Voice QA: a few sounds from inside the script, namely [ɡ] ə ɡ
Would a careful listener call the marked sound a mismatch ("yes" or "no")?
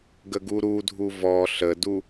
no